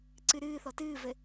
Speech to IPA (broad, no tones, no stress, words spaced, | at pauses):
ǀɨɾɨː θɔtɨːvɘ